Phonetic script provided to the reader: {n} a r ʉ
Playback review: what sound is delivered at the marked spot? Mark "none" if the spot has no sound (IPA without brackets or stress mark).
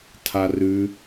tʰ